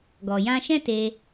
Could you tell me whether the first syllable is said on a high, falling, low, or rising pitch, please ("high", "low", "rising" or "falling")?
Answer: low